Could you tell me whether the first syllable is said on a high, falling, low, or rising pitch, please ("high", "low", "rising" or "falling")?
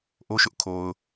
high